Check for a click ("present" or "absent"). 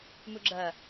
present